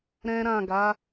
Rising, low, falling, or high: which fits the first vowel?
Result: high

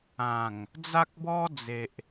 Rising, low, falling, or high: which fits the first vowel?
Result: low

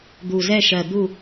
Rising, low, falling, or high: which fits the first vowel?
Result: low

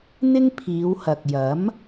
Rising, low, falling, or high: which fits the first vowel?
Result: high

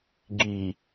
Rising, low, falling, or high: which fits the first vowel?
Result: low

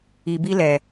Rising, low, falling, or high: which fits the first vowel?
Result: low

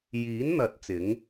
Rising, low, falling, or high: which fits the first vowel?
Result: rising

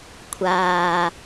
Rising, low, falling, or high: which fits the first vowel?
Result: low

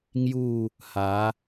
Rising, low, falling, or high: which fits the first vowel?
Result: falling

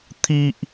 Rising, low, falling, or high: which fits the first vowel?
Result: high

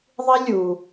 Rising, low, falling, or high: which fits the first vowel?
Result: high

